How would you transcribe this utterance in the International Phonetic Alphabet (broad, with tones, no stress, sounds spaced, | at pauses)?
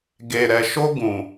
ɡ e˨ ɾ ɛ˨ ʃ o˦ ɡ ũ˨